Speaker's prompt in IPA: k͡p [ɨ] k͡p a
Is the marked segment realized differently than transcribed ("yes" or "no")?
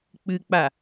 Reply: no